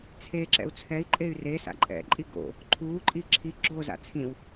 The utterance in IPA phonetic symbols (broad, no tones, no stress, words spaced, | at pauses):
t͡sʰeǁɛ̰u̯ t͡sʰɛi̯ǃʼey̯ re sa̰ǃʼɛ̰ǃʼi ɡo̰ | ǃʰuːǃʼi ǁʰi ɡ͡ǁoza̰ t͡sʰĩw